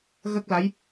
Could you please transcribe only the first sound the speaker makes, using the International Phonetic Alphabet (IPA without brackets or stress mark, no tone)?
ɣ